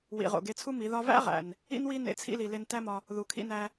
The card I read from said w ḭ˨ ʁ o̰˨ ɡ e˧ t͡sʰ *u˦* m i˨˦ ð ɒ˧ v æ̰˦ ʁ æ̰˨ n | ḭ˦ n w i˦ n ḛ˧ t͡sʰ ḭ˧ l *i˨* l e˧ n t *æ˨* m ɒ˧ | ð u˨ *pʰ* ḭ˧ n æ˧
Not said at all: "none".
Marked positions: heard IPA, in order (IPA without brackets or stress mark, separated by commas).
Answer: u˦, i˨, æ˦, kʰ